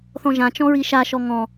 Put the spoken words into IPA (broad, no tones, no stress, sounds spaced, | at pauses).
θ ɔ̃ ʒ ã t͡ʃ ɔ̃ ɹ i ʃ a ʃ ɔ ŋ ɔ̃